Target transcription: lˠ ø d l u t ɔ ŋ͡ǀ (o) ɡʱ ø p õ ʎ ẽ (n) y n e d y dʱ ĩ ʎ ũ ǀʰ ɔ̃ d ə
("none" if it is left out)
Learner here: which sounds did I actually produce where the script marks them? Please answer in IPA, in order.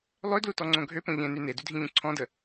õ, n

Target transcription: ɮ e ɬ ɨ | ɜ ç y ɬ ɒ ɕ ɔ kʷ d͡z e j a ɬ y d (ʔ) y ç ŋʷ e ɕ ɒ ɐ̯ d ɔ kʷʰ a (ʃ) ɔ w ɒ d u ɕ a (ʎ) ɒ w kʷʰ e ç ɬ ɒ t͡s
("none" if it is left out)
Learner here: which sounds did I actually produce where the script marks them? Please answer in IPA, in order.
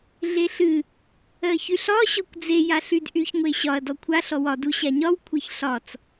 ʔ, ɬ, ɲ

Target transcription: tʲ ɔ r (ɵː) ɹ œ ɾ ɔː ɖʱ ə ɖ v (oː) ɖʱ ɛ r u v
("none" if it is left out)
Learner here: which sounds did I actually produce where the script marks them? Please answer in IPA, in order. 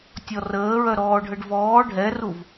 əː, ɔː

